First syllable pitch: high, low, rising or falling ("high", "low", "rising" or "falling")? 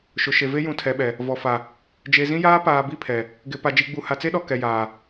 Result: low